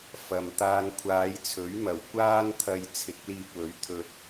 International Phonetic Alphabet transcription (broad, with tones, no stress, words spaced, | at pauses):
fɐ˨m t̪aː˧nkʷʰaː˨˧jt͡sʰɵ˨˥ɥmɐ˨˩w kʷaː˥nt̪ʰɐ˧j t͡sʰɪ˨˥k̚liː˧p̚wɵ˨˥ɥ t̪ʰɵ˧t̚